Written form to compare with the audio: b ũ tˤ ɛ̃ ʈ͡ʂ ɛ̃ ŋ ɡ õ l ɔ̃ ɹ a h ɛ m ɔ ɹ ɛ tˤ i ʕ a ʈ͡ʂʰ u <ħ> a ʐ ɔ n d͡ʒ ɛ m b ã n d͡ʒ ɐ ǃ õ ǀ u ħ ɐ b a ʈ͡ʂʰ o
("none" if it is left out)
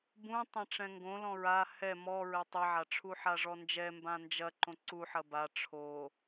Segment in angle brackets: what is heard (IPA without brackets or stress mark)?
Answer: ħ